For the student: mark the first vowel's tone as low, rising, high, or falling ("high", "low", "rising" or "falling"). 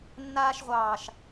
high